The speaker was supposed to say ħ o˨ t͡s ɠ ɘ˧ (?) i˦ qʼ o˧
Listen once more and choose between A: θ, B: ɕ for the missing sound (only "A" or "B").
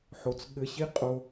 B